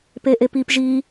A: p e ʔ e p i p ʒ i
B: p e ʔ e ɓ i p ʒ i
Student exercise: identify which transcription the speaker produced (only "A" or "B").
A